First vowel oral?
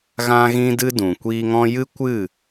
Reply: no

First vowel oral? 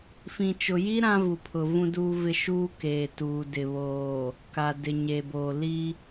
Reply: no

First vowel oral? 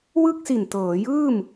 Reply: yes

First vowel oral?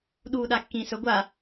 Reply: yes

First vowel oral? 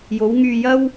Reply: yes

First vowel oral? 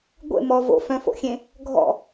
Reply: yes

